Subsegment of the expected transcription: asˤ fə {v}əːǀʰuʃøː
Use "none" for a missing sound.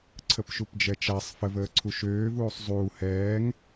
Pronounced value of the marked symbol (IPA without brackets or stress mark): v